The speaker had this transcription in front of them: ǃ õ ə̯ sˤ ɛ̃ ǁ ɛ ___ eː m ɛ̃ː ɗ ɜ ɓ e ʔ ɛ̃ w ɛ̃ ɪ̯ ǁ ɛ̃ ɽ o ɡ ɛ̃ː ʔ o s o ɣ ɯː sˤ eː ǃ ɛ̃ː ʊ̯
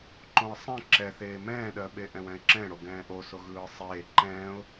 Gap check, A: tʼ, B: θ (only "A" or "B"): B